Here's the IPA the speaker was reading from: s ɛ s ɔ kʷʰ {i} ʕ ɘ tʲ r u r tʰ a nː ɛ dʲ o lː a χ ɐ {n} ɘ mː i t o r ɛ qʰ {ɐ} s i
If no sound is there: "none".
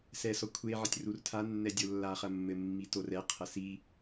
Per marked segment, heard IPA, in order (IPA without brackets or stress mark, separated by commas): e, mː, ɐ